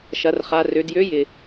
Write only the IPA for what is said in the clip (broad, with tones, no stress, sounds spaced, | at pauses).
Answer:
ʃ ɐ˩˧ r χ a˩˧ r ø˩˧ d j ø˧˥ j ɪ˩